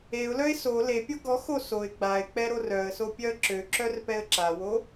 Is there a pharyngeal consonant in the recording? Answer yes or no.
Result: no